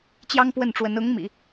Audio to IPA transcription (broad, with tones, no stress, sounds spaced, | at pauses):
t͡ɕ j ɑ˥ ŋ p w ə˥˩ n ʈ͡ʂ w ə˧˥ n ʊ˧˥ ŋ m ḭ˨˩˦